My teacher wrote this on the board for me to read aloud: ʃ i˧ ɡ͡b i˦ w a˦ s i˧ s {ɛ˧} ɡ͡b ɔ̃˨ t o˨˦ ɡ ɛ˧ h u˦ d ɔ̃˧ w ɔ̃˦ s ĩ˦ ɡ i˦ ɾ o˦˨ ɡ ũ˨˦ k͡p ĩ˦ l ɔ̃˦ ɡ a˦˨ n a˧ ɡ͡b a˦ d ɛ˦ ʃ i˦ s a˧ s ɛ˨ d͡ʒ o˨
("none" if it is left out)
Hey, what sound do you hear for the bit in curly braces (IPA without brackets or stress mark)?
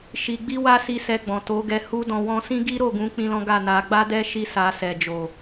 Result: ɛ˧